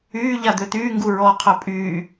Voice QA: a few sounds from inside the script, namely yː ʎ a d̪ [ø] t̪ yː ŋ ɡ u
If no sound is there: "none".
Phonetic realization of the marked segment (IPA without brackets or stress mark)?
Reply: ø